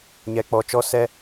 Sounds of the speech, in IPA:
ɲ ɛ˨ k͡p ɔ˨ t͡ʃ ɔ˧ s ɛ˦

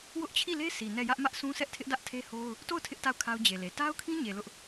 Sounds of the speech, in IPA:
w ʊ˦ ʔ t͡ɕʰ i˦˨ l e˦ sʰ i˨ n ɛ˦˨ j ä˦ ʔ m ä˦ ʔ sʰ ũ˦ s ɛ˦ ʔ tʰ ɪ˦ ʔ d ä˦ ʔ tʰ e˦ h o˦ ʊ̯ | t o˦˨ ʊ̯ tʰ ɪ˦ ʔ t a˦˨ ʊ̯ kʰ a˦ ʊ̯ d͡ʑ e˨ l e˨ t a˦ ʊ̯ kʰ ĩ˦ ɲ e˨ l ʊ˦ ʔ

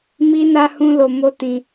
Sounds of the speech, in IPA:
m i˦ n a˦ h ũ˦ l o˧ m o˦ t ĩ˧

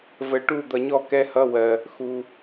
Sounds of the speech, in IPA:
v ə˨ ʈ u˥˨ d̪ ʌ˨ ɲ ɔ˥˨ k ɛ˦˥ h ʌ˧˥˧ w ɜ˨ | x u˨

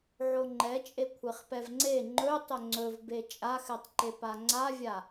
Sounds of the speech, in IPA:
ʕ o ŋ͡ǃ ɛ t͡ʃʼ e kʷʰ e χ p ɛ v ŋ͡ǀ e ŋ͡ǃ ɵ tˤ ɵ ŋ͡ǀ ɵ v b e t͡ʃʼ a x ɛ tˤ ǃ e p a ŋ͡ǀ a vʲ a

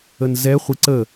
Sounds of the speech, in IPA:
ə n z ɛ χʷ i ǀ ə

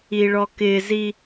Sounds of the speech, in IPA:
i ɭ ɔ k ɪ z i

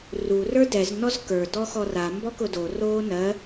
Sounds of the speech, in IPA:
r u r ə˞ d ɛ z n ɔ z k ə˞ d ɔ x ɔ r a m b ɔ k ʊ d o r oː n ɜ

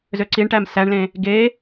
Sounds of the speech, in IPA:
z ø ǀ i ɳ ʈ æ m s æ ɳ l ẽ | ɡ e

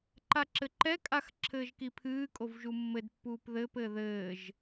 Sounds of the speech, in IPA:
ǃ a ǁ ɘ ǃ ɛ kʼ a x ǁʰ ɘː ʒ k i pʰ ɨː kʼ o v ʒ u mː ɘ d pː uː p ð ɘː p ɘː ð ɘː ʒ

